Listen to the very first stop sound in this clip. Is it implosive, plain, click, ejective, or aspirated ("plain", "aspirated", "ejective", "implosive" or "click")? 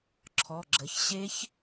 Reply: click